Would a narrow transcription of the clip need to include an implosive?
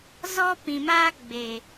no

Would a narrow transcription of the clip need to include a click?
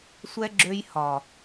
yes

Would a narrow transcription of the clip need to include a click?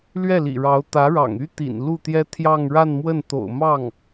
no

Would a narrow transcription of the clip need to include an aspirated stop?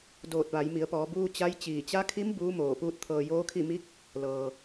yes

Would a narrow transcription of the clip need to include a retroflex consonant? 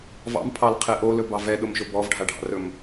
yes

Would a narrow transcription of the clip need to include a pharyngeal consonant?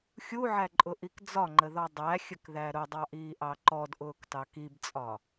yes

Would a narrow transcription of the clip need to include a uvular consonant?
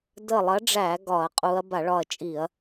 yes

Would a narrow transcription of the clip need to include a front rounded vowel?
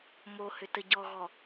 yes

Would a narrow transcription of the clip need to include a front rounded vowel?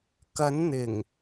no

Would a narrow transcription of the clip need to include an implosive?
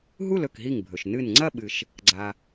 yes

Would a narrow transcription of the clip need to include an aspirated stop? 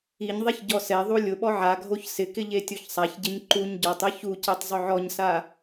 no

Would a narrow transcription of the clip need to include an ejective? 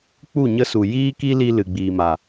no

